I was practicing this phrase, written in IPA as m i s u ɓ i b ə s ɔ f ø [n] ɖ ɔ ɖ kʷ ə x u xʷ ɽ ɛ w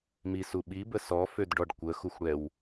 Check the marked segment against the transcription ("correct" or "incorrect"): incorrect